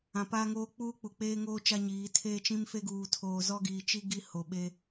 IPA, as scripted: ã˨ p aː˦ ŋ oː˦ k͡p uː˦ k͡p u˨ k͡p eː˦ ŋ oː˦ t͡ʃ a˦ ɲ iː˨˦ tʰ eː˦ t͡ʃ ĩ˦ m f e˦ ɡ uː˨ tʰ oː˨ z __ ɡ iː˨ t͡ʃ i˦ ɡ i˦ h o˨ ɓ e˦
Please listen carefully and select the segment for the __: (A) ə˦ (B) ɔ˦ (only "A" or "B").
B